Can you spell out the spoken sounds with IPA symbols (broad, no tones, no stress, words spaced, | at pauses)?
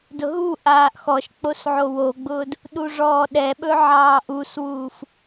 dʊɦuʔaːʔ xɔʃk͡pos ʕowoɡ͡bʊːd | ɗuʐɔːɗɛɓɵ ʕɑːʔuswuːf